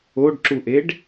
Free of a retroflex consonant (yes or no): no